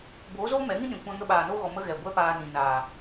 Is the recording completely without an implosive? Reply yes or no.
no